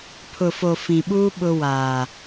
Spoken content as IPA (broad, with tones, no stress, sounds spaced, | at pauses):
pʰ ʊ˨ f o˨ f ĩ˨ ɓ uː˦ ɓ ʊ˦ w aː˨